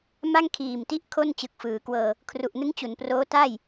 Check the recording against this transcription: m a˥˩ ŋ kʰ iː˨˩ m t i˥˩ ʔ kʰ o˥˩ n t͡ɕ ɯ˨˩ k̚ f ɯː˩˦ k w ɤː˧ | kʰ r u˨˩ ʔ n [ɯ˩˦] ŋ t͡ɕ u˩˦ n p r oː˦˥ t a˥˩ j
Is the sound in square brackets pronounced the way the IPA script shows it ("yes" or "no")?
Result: no